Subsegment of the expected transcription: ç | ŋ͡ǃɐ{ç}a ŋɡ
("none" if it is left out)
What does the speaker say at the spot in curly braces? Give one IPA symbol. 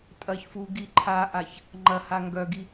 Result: h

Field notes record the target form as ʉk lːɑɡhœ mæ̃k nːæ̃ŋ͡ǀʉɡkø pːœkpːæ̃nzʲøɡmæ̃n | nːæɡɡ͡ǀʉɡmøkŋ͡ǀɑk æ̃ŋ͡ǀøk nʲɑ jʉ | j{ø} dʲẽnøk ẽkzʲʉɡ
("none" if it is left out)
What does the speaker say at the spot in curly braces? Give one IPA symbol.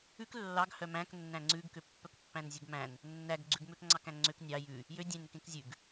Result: ø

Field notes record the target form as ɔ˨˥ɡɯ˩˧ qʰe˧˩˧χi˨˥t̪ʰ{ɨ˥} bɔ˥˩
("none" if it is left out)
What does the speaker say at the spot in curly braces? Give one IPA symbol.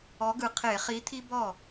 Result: i˥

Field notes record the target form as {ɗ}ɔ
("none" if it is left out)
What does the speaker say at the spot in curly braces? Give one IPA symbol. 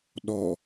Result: ɗ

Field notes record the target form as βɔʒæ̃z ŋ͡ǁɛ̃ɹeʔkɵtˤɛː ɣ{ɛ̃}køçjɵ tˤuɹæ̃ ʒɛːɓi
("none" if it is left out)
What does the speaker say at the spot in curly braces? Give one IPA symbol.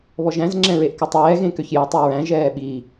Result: ẽ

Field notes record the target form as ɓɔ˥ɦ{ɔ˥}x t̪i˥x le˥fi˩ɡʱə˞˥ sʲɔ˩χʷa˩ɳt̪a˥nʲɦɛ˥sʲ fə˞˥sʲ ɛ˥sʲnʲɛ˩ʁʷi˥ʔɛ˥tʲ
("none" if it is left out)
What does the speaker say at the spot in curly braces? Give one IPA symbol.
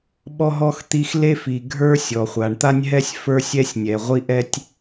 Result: ɔ˥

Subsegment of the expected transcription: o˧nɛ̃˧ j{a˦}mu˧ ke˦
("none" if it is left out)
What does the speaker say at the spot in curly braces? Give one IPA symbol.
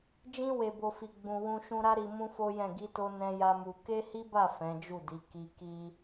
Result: a˦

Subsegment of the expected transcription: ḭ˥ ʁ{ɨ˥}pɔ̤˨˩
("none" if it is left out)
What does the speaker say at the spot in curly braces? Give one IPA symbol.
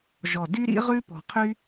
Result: ʉ˥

